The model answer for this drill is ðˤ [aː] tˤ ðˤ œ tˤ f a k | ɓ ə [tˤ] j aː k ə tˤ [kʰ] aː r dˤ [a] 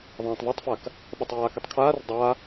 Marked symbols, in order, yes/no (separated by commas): no, yes, yes, yes